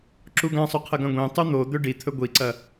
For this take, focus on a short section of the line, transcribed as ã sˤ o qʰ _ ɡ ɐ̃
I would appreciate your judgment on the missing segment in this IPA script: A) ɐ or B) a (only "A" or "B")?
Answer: A